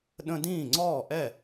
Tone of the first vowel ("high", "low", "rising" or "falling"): high